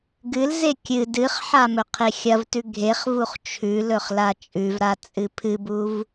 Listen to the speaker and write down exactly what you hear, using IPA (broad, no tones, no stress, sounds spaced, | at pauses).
ɡ ɨ l z e kʲ ɨ d ɨ χ ħ a m ɵ qʰ e xʲ ɐ v t ʉ ɡʱ e χ v u χ t͡ʃʰ ʉ l ɵ χ l a t͡ʃʼ ʉ v ɾ a t͡sʼ ɨ pʰ ɨ b u v